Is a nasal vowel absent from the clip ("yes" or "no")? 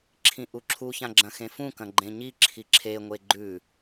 no